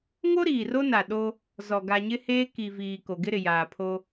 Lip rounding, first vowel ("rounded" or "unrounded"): rounded